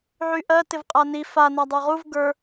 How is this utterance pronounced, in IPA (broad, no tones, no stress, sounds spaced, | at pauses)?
ʕ y ʔ ɜ t ɪ v qʼ a n i f a n a dˤ ə˞ ʁ u v ɡ ə˞